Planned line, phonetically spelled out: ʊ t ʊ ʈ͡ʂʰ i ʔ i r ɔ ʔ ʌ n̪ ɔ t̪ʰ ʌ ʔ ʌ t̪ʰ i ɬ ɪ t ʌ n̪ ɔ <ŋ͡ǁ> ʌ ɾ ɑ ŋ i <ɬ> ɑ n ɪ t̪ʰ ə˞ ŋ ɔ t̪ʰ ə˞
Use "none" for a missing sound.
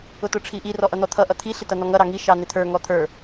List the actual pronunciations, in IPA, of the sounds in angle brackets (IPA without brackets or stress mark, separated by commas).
ŋ, ʃ